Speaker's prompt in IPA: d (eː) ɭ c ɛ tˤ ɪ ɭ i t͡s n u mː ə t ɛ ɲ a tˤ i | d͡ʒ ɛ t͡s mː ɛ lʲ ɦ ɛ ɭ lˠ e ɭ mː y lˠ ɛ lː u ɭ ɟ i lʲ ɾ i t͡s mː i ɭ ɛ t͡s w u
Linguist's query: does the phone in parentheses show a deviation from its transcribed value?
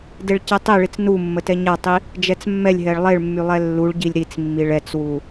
yes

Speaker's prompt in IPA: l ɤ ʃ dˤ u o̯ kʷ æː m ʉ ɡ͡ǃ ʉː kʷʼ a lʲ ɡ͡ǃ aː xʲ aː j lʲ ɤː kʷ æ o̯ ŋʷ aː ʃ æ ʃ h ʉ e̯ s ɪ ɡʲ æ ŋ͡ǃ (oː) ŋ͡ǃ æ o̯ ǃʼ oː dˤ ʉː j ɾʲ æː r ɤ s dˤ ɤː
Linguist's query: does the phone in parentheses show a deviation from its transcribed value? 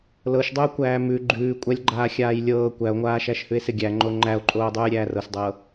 yes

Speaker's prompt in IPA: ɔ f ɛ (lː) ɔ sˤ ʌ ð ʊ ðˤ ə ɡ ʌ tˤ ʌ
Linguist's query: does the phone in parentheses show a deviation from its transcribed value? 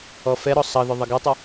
yes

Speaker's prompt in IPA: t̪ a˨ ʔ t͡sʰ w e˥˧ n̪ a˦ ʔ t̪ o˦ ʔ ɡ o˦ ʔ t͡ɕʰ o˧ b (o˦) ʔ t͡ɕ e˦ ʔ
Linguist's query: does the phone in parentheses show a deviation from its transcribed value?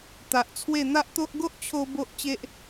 no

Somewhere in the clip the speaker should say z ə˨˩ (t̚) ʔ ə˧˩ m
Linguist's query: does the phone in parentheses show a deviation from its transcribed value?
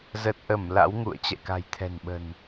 no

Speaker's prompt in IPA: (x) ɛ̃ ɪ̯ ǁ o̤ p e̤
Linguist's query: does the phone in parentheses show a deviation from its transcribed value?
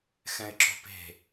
no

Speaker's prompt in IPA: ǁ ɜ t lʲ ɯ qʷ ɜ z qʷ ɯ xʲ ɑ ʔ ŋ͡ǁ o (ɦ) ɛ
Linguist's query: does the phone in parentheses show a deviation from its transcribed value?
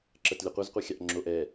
yes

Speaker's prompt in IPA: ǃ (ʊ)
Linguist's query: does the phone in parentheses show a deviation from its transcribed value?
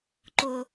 no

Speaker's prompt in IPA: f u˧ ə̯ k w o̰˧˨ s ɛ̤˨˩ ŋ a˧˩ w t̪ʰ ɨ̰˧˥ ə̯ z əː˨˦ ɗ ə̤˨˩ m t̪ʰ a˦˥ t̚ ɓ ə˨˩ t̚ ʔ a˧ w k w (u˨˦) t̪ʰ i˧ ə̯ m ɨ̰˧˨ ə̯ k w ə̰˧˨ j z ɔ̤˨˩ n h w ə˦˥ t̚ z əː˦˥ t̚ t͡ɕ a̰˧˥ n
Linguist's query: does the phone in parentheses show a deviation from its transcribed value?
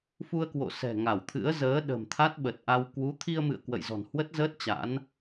no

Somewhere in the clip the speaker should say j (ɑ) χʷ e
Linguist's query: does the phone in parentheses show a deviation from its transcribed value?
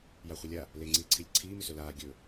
yes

